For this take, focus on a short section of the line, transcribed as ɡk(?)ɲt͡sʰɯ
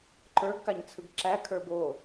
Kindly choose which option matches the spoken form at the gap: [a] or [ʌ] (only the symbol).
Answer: a